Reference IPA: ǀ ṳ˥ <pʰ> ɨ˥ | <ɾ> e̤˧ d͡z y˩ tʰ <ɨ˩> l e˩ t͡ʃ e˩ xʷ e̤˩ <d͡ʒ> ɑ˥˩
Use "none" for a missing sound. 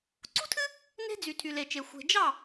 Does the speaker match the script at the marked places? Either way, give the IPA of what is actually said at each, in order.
tʰ, n, y˩, d͡ʒ

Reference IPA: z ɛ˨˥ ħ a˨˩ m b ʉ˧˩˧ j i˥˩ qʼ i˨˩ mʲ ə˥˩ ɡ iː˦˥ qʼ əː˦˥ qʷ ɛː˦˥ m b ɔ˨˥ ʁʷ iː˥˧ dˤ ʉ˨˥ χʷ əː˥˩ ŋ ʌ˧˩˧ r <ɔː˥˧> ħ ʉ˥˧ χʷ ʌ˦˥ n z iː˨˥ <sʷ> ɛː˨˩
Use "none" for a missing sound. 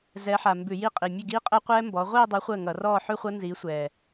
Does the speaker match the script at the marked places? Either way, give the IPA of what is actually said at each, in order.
ɔː˥˧, sʷ

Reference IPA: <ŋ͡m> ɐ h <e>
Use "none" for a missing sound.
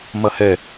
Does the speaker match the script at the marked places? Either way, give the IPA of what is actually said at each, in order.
m, ɛ

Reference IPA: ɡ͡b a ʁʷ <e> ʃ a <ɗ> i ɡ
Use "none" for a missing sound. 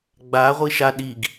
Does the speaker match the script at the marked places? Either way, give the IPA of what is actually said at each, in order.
i, ɗ

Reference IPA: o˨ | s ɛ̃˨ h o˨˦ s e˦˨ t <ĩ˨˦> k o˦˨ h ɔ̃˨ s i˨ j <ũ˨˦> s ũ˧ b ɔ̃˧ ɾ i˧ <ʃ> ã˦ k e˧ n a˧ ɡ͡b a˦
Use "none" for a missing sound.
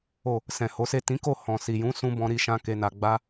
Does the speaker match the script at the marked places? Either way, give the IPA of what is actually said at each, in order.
ĩ˨˦, ũ˨˦, ʃ

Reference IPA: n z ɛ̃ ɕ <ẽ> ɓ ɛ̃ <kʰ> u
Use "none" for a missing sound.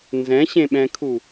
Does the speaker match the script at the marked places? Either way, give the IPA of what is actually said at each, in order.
ẽ, kʰ

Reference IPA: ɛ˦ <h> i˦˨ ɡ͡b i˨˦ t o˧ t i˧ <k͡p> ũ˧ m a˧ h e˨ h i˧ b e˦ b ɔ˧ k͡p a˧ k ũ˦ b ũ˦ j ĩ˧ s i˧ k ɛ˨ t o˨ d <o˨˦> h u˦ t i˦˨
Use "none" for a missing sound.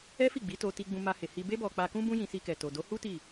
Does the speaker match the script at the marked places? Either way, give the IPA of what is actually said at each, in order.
f, ɡ͡b, o˨˦

